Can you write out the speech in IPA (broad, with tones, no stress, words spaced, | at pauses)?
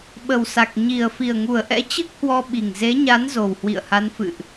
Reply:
ɓə˨˩wsa˨˩k̚ ɲi˨˩ə̯ fi˨˩ə̯ŋu˨˩ə̯ʔɛ̰˧˥ t͡ɕɨ˦˥k̚hwɔ˧ ɓi˨˩ŋ ze˨˦ɲa˨˦n zo˨˩whwḭ˧˨ə̯ha˨˦n fɨ̰˧˨ʔ